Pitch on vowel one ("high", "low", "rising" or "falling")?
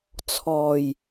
low